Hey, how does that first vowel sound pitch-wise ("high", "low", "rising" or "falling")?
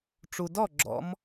low